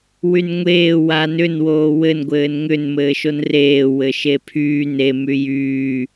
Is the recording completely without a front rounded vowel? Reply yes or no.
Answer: no